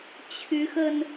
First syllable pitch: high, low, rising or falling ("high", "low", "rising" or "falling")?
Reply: rising